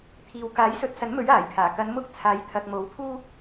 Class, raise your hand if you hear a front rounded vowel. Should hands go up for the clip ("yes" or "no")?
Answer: no